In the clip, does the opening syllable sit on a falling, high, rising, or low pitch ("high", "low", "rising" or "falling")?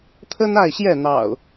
high